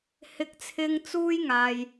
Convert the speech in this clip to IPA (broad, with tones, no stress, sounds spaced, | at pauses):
h ɪ˨˥ k̚ t͡sʰ ɪ˧ ŋ t͡s uː˥ j ŋ aː˨ j